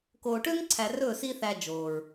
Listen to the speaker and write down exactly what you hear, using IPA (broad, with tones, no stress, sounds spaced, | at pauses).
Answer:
k oː˨ ʈ ø˦ ŋ ǀʰ æ˨ r ɵː˦˨ s iː˦ θ æ˧ d͡ʒ oː˨ ɹ